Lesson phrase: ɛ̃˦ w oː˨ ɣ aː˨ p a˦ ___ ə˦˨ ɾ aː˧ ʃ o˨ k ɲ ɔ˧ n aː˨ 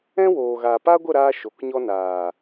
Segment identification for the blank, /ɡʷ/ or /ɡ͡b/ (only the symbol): ɡʷ